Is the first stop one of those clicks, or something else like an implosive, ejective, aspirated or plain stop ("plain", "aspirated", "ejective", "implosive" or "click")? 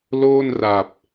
plain